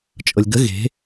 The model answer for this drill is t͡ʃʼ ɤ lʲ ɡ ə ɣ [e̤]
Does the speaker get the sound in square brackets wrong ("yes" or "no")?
no